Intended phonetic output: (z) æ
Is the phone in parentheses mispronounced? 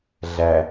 yes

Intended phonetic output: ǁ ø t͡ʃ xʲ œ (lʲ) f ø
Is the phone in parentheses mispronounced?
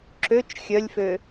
no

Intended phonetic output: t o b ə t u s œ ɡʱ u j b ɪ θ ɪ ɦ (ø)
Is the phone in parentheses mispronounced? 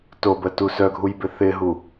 yes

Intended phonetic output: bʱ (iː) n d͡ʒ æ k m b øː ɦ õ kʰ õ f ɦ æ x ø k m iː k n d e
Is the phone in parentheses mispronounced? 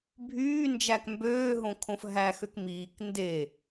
yes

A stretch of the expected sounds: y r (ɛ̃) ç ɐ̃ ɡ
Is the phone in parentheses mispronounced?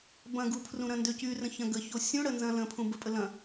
yes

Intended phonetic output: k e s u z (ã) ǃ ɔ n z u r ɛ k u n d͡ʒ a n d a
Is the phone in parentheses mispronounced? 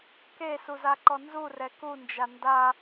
yes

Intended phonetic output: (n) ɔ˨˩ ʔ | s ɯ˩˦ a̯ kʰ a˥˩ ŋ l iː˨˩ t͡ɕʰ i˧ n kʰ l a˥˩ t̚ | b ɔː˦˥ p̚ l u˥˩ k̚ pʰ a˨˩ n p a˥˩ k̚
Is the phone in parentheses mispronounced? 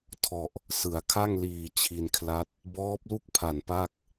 yes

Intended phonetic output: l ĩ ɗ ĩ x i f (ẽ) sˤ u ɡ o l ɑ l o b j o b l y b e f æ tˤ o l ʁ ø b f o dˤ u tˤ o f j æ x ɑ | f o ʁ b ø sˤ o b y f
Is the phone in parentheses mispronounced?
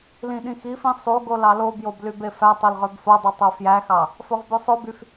yes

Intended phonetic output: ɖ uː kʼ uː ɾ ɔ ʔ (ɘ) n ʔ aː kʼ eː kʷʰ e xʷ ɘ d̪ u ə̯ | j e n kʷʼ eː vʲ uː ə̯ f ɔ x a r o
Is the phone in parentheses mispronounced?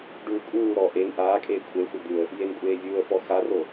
yes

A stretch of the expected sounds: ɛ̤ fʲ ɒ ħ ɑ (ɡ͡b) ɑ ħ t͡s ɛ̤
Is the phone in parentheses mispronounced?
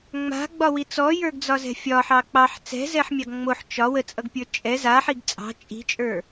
yes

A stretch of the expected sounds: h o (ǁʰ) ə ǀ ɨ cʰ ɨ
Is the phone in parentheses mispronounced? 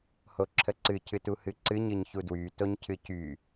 no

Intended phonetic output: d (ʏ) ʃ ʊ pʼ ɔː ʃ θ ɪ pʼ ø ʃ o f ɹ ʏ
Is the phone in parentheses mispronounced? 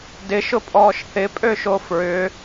yes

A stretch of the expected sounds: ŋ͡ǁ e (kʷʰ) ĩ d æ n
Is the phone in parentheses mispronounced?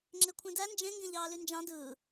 no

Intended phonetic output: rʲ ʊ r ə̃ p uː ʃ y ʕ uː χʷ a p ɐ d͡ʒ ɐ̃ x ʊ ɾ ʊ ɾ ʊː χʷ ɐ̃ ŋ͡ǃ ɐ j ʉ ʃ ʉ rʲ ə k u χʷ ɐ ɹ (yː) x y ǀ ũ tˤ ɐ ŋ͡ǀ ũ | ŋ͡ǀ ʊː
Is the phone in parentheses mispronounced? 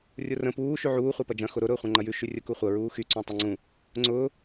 yes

